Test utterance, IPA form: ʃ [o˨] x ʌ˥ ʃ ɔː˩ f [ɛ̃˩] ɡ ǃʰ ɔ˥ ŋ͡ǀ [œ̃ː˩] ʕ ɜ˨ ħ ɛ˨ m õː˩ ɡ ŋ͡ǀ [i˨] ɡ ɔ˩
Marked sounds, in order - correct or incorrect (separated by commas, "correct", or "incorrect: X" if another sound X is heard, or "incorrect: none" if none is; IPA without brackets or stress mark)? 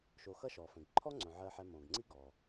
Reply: correct, correct, incorrect: œ̃˩, incorrect: i˥